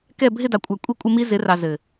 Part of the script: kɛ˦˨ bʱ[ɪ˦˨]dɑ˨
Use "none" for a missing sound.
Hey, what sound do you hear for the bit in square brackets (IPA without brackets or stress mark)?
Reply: ɪ˦˨